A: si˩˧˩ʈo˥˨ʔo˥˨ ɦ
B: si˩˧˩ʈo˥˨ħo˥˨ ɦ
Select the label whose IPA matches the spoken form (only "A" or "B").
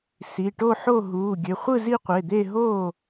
B